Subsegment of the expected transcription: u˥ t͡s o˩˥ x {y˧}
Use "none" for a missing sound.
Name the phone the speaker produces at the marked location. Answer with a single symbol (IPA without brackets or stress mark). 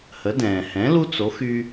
y˧